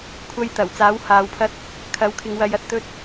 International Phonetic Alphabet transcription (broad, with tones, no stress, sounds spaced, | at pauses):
kʷʰ ɐ˥ j t̪ ɐ˨˩ w t͡s aː˨˥ w h aː˨˧ w pʰ ɐ˥ t̚ | kʰ ɐ˨˥ w kʰ ɪ˨˧ ŋ w ɐ˨˧ j ɐ˨ t̚ t̪ ɵ˥ t̚